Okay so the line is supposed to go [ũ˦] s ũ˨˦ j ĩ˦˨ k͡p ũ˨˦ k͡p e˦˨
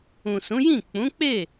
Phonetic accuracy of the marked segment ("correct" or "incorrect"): incorrect